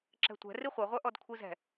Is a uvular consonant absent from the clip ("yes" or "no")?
no